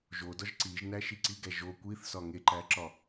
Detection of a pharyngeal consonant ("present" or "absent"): absent